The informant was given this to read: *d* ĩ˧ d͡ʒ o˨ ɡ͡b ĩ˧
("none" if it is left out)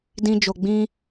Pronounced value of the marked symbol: d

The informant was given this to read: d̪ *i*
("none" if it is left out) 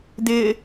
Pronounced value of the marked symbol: ɪ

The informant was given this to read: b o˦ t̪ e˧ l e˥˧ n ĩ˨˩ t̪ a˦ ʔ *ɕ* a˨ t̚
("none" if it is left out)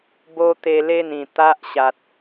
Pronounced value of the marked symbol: ɕ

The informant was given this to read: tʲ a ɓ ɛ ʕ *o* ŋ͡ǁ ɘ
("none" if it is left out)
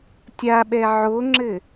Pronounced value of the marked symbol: o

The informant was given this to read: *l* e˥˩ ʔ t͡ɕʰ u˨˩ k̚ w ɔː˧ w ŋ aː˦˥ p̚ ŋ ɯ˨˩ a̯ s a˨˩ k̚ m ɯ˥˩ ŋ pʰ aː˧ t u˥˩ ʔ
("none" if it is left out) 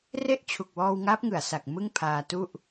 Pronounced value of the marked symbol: r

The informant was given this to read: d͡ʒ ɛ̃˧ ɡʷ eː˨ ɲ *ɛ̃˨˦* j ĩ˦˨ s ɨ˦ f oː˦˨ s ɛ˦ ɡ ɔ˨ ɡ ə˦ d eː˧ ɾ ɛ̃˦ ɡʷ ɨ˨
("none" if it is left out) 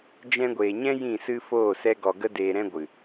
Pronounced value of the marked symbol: ɛ̃˦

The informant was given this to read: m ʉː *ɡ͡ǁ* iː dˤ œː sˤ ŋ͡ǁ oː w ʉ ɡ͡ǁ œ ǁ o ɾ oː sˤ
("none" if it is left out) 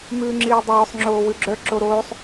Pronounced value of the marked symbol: ŋ͡ǁ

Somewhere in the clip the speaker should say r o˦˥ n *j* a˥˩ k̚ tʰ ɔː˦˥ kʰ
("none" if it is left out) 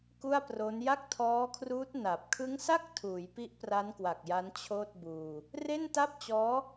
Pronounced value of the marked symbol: j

